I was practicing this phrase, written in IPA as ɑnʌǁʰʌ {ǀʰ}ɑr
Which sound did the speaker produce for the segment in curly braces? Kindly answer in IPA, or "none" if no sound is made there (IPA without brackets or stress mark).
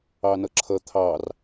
t̪ʰ